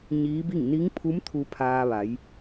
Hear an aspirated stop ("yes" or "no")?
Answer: yes